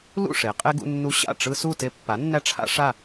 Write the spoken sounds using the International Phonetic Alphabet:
l ṵ˥˨ ʂ e˩˧ qʼ e˦ ɡ ṵ˦ nː u˦ ɕ a̰˥˨ ʈ͡ʂ ɯ˦ s u˥˨ t e˦ pː a˩˥ nː æ˦ ʈ͡ʂʰ a̰˦ ʂ a˥˨

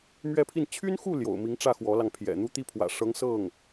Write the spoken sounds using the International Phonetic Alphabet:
m ɥ ɛ˥˧ pʰ i˥˩ n t͡ɕʰ y˥ n x u˥˩ l j o̰˨˩ ʊ̯ m i˧˥ ŋ ʈ͡ʂ ä˥˩ x w ɔ˧˥ l ɑ˧ ŋ pʰ j ɛ̰˨˩ n̪ u˥ t̪ i˥˩ pʰ w ä̰˨˩ ʂ ɤ˧˥ ŋ s ɤ˥˩ ŋ

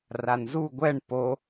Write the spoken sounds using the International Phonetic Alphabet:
r a n z u ɡʷ ɛ ɳ p o

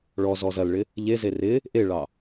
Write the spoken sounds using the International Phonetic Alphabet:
ɭ ɔ z ɔ z ɐ l ɭ ɪ | ʎ e z e r ɪ | ʔ e ɭ ɑ

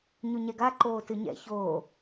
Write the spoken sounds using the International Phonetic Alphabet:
ɲ u ɲ ɛ ɡ a ǃ oː t ɨ ɲ ɛ̰ ç oː

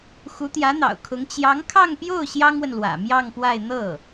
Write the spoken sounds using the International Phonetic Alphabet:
x u˧˥ t̪ j ä˧˥ n̪ ɑ̰˨˩ ʊ̯ kʰ ʊ˧˥ ŋ t͡ɕ j ɑ˧˥ ŋ kʰ ɑ˥˧ ŋ p j o˥˩ ʊ̯ ɕ j ɑ˥ ŋ w ə˨ n l w ä̰˨˩ m j ɑ˥˧ ŋ p w a˥˧ ɪ̯ n̪ ɤ˥˩

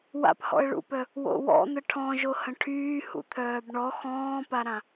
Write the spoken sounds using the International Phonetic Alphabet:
w a̰ p h ɔ̰ ə̯ ɭ ṵ p œ | w o̰ w ɔ̰ n̪ ə ʈʰ ɔ̃ ʒ o h ə̃ ʈʰ yː h ṵ t̪ʰ œː b ɳ ɔ x ɔ̃ː p a ɾ ã

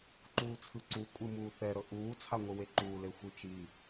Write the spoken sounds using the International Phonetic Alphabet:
ǃ uː t͡sʰ ɯ ǀ u kʷʼ ɯ m uː θ ɛ ɾ ɤ ʔ uː t͡sʰ a ŋʷ ɯ w e ǃ uː l e xʷ ɯ t͡ʃ i

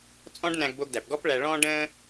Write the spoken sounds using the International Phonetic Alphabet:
t͡sʼ ɔ̃˥ ɖ n æ̃˧ ɡ b o˧ ɡ d æ˩ p ɡ ɔ˥ p ɭ æ˧ ɭ ɔ̃ː˥ ɖ ə̃ː˥

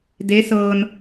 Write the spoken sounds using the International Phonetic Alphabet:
d e˧˥ s ɤː˧ n

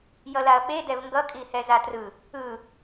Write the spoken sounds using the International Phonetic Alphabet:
j ʌ l a ɐ̯ ɓ e d ɛ v ŋ ɡ ʌ kʼ i h ɛ z a t r ɯ | ɯ

